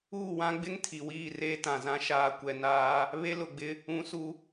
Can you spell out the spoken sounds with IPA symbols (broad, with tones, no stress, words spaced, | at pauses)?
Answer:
uː˦˨wã˦ɡ͡bɪ˦ŋ tʰi˨wiː˦˨reː˦ tã˨zã˦ ʃaː˨kʷɛ˨naː˦ | βe˦lʊ˨ɡ͡bɪ˦ | ũ˦su˦